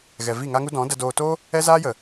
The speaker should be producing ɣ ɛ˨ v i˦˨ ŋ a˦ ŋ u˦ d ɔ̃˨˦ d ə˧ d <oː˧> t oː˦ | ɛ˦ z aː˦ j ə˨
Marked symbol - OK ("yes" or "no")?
yes